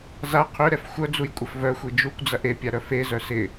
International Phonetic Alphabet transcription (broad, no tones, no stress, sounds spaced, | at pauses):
z a qʰ ø ɾ ɛ f xʷ œ d͡z u j kʷʼ ɐ f v œ xʷ i d͡ʒ u kʷ d͡z ɐ ʔ e pʲ a ɾ œ f e z œ s ɪ